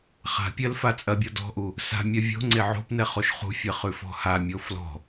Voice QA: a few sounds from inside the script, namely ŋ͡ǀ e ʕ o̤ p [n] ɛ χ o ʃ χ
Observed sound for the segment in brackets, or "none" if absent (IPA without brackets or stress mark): n